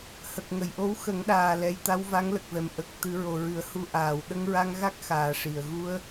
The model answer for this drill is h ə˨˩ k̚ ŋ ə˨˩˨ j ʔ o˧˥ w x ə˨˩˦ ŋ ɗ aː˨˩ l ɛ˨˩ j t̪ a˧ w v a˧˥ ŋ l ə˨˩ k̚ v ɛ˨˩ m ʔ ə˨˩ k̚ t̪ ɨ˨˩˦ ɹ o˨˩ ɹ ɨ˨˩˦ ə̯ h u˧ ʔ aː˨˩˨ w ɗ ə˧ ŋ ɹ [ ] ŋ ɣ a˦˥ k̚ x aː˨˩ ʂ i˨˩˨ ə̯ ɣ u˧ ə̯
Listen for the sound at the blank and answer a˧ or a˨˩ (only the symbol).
a˧